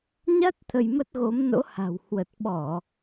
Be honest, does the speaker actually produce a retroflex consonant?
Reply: no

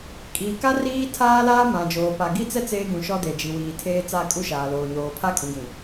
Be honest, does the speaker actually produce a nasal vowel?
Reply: yes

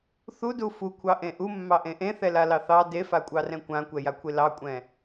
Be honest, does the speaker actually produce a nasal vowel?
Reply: yes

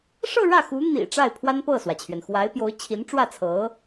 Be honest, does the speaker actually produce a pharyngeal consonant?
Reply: no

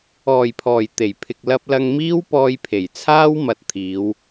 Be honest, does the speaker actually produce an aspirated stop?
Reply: yes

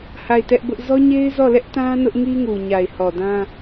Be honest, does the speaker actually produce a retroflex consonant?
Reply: no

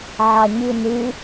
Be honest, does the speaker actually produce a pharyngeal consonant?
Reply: yes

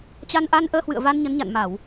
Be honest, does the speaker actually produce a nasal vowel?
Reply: no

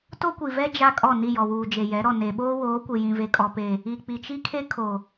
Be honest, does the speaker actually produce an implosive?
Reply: yes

